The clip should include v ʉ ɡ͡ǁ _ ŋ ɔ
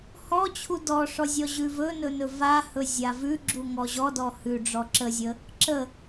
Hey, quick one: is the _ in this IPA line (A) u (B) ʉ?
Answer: A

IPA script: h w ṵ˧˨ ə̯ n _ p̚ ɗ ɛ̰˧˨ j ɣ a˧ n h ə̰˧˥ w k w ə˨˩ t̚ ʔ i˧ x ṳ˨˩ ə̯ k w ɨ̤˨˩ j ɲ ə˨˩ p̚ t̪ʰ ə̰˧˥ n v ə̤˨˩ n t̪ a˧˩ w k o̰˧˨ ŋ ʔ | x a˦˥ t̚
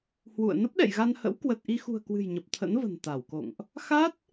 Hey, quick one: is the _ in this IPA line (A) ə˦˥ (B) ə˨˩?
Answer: A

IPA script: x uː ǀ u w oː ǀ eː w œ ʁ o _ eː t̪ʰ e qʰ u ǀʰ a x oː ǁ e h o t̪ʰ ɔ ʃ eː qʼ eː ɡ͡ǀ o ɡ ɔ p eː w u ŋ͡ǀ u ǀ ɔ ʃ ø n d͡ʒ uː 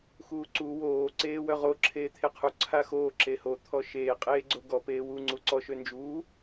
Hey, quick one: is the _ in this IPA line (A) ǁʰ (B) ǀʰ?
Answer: A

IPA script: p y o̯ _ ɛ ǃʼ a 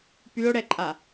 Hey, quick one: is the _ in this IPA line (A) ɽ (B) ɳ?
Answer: A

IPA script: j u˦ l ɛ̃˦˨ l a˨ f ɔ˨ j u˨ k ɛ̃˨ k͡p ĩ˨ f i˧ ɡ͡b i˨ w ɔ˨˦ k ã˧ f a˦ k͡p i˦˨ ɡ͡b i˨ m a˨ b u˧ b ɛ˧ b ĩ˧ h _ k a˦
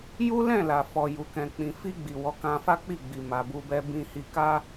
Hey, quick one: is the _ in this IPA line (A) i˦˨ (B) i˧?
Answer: B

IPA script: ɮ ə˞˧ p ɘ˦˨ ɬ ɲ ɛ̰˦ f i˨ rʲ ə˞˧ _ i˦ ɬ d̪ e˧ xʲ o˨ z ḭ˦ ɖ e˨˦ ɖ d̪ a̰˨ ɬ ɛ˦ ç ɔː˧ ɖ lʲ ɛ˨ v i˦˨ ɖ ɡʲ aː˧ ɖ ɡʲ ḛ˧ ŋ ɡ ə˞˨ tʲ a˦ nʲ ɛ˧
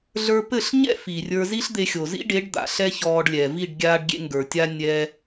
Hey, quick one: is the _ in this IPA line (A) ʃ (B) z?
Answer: B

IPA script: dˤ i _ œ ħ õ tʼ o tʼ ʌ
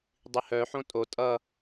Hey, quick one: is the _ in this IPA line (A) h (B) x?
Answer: A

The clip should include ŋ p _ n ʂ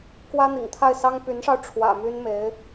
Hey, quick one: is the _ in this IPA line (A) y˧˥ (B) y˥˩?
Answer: A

